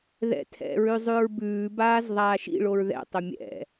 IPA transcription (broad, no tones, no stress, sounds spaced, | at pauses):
ð ɛ̰ tʰ ɛ̰ ɹ ʉ zˤ ʉ ɹ b ʉː b aː z ðˤ aː ʃ ḭ ɭ o ɹ ð ɛ̰ tˤ ʊ mʲ ɛ̰